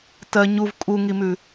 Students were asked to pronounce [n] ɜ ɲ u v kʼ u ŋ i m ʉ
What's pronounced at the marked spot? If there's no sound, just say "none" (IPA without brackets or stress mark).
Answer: t